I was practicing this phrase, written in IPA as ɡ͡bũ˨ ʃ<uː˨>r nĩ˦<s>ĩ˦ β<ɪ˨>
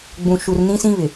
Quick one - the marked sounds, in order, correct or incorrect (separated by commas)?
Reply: incorrect, correct, correct